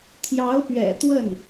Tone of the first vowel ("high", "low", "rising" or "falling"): rising